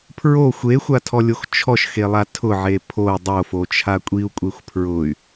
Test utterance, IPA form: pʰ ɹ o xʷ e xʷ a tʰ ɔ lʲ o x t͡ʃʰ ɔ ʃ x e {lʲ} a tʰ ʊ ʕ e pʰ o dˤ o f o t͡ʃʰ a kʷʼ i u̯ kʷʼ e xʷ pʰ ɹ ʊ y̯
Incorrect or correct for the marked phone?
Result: incorrect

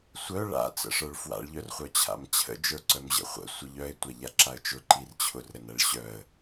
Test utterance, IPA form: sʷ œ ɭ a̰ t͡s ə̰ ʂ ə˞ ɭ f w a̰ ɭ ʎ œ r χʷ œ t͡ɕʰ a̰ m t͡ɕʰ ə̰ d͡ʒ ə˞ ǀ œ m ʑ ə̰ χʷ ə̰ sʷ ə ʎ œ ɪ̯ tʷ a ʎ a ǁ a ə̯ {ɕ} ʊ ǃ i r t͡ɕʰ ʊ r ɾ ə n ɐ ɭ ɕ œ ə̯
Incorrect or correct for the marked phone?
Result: incorrect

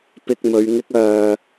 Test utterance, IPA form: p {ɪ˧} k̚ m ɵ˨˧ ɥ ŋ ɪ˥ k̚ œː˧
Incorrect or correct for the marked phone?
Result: correct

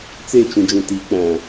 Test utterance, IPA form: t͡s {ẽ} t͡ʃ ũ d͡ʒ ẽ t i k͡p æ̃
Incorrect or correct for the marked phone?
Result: incorrect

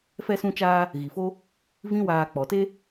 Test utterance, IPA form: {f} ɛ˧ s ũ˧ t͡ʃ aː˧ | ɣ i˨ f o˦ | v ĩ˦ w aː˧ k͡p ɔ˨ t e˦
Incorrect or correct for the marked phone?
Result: correct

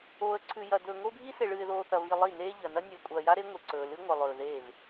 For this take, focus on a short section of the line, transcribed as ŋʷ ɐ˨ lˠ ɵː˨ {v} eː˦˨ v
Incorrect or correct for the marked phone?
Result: incorrect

